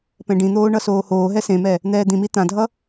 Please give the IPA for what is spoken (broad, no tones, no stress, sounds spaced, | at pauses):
p ɛ̃ ɖ ĩ n̪ oː ɳ ʌ s oː h oː ɦ ɛ s ẽ m ɛ | n̪ ɛː d̪ ĩ m i t̪ ã dʱ ʌ